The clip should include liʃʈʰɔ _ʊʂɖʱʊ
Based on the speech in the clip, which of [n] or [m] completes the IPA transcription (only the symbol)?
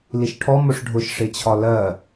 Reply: m